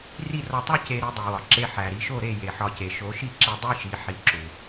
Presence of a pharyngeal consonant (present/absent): present